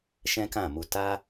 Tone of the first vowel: high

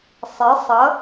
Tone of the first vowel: rising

